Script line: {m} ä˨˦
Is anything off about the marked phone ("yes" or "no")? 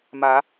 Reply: no